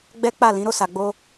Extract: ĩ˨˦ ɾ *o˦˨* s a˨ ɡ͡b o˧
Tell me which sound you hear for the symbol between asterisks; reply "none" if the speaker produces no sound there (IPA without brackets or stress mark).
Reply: o˦˨